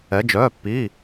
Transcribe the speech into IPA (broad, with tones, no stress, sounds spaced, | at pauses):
ɛ˧˥ d͡ʒ œː˧˥˧ pː iː˧˥˧